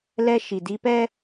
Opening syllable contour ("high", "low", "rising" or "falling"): high